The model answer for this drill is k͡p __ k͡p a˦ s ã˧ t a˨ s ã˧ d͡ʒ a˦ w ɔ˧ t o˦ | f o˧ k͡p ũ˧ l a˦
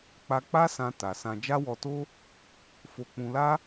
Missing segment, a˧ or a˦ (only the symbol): a˧